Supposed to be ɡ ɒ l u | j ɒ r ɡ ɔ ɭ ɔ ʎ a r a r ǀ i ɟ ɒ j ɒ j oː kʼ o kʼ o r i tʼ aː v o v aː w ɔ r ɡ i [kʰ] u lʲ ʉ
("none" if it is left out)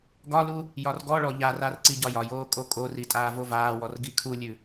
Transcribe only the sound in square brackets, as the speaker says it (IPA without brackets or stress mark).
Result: kʰ